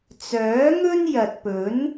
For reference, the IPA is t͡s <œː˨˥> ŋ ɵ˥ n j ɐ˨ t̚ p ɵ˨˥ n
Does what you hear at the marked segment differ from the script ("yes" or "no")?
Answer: no